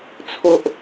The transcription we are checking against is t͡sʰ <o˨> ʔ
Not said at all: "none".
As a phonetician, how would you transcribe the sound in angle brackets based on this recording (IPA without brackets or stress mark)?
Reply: o˨